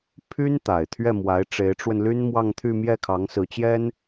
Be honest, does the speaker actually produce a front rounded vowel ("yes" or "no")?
yes